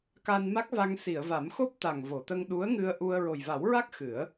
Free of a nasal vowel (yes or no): yes